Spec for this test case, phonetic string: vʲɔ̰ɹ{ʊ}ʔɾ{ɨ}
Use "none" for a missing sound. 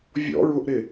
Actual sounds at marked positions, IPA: ʊ, ɪ

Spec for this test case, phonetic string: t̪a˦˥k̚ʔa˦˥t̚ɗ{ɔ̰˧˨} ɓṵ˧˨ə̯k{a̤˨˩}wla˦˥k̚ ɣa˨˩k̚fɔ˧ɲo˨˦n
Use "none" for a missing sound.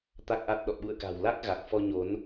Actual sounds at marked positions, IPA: ɔ̰˧˨, a̤˨˩

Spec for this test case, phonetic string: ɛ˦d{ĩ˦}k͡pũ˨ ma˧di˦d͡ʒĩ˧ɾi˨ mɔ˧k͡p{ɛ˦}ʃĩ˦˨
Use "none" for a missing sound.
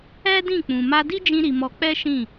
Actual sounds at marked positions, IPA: ĩ˦˨, ɛ˦

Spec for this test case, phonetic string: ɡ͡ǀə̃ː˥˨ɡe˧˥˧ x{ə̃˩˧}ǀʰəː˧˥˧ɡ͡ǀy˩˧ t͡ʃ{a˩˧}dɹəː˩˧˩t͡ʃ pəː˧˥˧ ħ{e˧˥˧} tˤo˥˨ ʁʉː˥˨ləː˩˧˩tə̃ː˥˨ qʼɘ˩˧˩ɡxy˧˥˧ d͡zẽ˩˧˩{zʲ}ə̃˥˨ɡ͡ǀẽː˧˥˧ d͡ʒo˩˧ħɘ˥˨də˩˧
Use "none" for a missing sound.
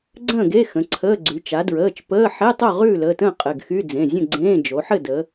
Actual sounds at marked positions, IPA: ə̃˩˧, a˩˧, e˧˥˧, zʲ

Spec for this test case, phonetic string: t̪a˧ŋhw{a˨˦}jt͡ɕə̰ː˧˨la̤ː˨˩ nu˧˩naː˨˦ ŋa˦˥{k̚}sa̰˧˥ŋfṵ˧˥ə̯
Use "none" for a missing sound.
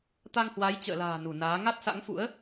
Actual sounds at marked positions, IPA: a˨˦, t̚

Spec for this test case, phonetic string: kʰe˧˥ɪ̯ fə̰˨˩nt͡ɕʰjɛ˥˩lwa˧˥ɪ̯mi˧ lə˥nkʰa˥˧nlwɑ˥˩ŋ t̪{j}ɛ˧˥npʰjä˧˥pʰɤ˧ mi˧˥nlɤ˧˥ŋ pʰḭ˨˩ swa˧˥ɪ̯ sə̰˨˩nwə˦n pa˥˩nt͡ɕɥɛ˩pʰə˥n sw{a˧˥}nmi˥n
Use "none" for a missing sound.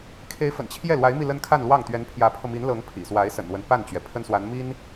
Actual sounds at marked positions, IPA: ɥ, a˧˥

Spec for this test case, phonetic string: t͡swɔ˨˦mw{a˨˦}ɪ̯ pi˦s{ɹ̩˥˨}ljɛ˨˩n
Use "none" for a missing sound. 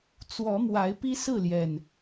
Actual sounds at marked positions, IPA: a˨˦, ɹ̩˥˨

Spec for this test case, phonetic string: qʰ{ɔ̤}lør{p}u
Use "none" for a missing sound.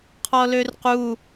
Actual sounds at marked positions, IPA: ɔ, q

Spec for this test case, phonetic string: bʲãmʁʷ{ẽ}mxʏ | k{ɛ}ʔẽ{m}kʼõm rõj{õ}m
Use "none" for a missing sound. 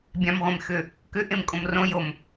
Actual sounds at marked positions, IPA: ẽ, ʏ, m, o

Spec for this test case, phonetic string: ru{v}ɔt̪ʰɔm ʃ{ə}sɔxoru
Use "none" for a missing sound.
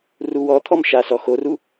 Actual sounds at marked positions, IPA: w, a

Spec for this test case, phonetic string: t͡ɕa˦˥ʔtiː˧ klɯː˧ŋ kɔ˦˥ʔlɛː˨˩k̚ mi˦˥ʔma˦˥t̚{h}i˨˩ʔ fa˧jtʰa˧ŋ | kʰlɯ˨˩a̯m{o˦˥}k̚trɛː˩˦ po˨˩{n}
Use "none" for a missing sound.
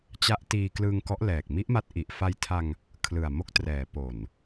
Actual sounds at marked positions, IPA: ʔ, o˦˥, n

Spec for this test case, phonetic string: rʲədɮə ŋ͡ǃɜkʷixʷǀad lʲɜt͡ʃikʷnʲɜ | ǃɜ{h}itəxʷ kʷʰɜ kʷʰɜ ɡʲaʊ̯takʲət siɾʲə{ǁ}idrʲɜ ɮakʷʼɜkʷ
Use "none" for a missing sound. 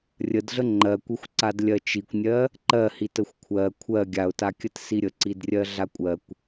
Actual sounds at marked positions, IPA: h, ǀ

